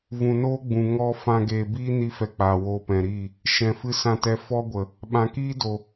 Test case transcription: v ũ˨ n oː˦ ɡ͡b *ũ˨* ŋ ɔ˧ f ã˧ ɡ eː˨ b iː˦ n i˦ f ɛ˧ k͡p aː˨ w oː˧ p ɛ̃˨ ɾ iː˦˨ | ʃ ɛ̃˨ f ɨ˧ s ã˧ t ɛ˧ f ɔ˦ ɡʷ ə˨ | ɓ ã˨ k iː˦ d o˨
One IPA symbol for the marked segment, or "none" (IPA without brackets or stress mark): ũ˨